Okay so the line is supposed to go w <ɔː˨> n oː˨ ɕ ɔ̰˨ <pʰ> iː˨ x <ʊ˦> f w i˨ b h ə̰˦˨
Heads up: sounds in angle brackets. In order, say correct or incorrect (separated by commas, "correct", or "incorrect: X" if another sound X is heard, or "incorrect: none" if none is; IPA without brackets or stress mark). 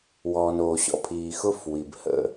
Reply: correct, correct, correct